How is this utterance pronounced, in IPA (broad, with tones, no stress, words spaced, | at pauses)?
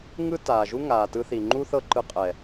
ŋɯ˦taː˨ʒu˦ ŋaː˨tɯ˧θi˨ ŋ͡ǃu˦θɤ˦˨ǃɯ˧qʼɛ˨